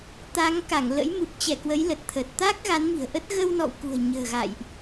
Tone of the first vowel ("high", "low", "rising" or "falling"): rising